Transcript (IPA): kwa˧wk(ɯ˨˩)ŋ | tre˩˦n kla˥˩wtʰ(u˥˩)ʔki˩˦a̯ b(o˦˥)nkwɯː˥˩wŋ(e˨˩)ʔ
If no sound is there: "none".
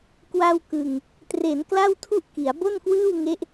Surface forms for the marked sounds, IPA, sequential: ɯ˨˩, u˥˩, o˥˩, e˦˥

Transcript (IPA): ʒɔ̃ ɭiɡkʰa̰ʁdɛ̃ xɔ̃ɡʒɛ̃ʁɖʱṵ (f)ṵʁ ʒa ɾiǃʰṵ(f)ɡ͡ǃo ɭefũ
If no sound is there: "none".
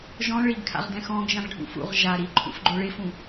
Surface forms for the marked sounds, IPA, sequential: f, f

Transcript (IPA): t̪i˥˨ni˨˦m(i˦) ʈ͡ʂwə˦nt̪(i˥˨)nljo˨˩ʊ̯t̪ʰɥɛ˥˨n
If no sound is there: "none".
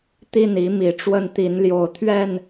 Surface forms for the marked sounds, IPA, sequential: i˨˩, i˨˦

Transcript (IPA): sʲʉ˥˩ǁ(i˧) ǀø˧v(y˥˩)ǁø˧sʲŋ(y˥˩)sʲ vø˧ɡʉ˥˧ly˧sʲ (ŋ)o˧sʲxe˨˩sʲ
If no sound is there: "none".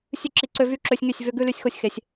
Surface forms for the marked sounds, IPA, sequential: i˧, y˥˧, y˥˩, x

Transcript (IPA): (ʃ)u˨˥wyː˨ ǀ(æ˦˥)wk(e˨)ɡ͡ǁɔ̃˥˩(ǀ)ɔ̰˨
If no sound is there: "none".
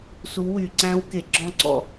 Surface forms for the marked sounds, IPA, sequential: s, æ̃˦˥, e˨, ǀ

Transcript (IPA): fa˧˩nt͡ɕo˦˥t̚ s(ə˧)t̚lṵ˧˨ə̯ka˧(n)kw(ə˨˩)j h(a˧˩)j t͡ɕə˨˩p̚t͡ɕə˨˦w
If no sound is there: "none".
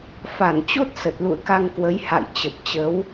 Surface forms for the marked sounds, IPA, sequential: ə˨˩, ŋ, ə˨˦, a̰˧˨

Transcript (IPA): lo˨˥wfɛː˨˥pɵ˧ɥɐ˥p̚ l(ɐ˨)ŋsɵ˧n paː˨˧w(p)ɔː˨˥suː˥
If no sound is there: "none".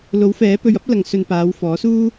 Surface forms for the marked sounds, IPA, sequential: ɐ˧, f

